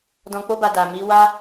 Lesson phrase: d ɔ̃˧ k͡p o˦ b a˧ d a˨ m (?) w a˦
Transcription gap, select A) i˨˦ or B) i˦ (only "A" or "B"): A